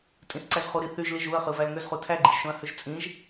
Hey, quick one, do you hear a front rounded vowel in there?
yes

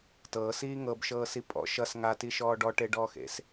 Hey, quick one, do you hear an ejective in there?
yes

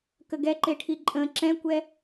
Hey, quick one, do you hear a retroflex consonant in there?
yes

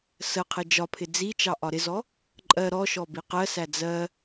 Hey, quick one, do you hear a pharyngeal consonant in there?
no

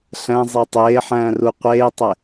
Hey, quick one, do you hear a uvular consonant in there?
yes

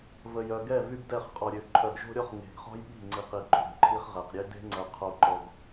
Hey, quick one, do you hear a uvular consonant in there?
yes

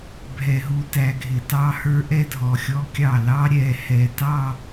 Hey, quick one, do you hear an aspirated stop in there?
no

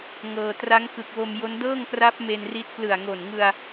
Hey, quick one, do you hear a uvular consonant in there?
no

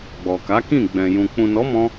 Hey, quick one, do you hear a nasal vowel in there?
yes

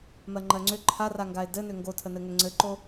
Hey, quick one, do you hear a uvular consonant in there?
no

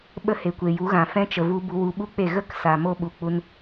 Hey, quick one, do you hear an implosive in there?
yes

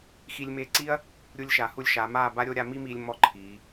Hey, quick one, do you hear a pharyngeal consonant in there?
no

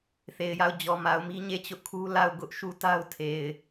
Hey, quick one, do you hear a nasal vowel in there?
no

